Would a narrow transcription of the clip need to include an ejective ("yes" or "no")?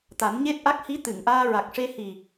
no